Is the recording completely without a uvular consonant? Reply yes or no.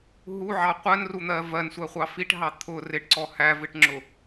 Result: no